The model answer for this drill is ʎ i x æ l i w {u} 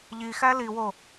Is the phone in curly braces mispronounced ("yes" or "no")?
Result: yes